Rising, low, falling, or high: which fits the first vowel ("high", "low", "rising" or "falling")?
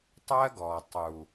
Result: high